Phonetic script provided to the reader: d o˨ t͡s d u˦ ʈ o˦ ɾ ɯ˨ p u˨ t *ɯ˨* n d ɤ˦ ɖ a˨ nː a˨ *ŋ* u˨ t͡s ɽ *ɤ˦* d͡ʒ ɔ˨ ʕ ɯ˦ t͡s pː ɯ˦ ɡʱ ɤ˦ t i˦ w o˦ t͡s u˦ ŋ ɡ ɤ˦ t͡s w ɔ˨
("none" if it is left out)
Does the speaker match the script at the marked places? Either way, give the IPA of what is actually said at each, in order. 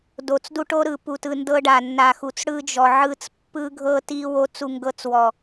ɯ˨, x, ɯ˦

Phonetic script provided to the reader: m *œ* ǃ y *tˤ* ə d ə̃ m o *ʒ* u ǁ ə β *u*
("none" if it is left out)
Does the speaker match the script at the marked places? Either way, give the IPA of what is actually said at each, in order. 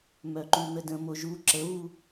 œ, n̪, ʒ, u

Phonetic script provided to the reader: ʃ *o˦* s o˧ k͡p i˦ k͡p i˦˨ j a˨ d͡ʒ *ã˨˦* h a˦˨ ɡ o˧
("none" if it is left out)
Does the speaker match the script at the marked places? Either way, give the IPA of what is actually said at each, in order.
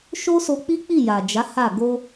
o˦, a˨˦

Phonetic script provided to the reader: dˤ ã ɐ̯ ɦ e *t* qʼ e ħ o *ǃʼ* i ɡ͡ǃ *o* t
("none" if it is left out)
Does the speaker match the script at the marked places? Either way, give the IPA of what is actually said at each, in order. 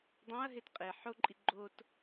t, ǃʼ, o

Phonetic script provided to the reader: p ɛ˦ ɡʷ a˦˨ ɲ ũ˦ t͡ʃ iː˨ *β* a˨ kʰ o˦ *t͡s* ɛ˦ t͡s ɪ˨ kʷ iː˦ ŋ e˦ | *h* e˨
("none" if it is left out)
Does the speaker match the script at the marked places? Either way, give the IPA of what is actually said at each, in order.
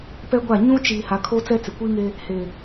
h, t͡s, h

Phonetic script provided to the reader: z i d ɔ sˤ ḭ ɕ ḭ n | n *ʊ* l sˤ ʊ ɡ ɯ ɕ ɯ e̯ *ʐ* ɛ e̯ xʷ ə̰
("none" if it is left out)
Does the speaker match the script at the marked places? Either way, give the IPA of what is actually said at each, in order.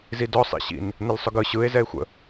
ə, z

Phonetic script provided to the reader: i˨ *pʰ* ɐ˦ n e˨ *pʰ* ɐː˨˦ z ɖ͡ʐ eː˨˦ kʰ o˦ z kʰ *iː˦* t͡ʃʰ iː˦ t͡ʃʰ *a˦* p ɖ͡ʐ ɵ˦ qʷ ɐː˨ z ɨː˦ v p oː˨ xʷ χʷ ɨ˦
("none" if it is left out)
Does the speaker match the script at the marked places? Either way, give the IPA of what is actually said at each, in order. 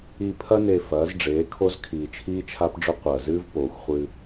pʰ, f, iː˨, a˦

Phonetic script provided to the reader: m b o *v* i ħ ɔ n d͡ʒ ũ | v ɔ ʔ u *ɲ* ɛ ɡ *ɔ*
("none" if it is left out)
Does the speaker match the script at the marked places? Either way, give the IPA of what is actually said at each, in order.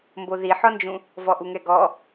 ð, ŋ, ɔ

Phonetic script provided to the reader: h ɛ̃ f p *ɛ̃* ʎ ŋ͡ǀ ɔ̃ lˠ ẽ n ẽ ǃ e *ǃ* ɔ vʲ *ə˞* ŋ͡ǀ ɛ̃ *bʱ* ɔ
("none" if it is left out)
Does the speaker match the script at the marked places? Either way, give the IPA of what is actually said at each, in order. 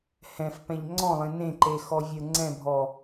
ɛ̃, x, ə˞, bʱ

